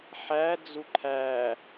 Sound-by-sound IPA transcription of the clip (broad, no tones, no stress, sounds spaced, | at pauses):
ħ æ d͡z u ǃʰ æ